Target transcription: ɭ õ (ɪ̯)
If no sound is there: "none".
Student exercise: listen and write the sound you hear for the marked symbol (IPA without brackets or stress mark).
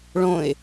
ɪ̯